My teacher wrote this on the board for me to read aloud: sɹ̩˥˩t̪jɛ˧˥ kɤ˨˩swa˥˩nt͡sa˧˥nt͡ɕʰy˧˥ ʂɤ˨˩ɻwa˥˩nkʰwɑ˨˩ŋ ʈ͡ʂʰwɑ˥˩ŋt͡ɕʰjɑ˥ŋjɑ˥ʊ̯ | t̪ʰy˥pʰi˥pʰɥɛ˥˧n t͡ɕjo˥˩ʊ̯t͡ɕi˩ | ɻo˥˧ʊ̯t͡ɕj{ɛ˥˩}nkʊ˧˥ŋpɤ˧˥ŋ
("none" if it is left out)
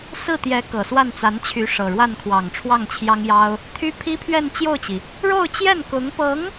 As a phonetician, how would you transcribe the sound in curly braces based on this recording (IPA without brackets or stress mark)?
ɛ˥˩